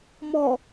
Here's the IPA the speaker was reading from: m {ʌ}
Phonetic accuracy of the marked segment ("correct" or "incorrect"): incorrect